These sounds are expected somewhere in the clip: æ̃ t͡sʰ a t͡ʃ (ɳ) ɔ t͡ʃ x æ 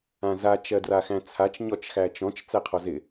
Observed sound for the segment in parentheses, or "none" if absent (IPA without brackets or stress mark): ɲ